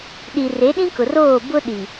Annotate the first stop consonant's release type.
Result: implosive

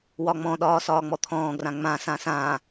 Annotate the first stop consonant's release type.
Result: implosive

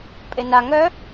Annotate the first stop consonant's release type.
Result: ejective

